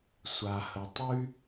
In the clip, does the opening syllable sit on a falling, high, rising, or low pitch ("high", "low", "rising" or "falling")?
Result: low